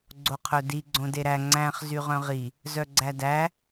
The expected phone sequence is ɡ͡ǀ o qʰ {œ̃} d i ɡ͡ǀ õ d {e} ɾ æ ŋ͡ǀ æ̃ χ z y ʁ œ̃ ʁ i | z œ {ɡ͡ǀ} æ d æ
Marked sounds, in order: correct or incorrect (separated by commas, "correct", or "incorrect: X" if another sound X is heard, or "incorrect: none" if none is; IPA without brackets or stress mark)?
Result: incorrect: œ, correct, correct